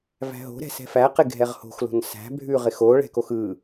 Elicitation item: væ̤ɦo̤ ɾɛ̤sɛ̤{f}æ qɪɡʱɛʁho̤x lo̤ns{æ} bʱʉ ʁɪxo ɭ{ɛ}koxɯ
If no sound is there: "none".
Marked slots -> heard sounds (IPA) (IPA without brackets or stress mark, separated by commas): f, æ̤, ɛ̤